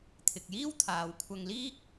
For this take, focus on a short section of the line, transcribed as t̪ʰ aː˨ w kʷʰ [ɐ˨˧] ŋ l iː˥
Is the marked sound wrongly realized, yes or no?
yes